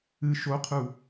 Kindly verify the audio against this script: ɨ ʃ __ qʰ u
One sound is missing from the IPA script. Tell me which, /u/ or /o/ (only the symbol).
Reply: o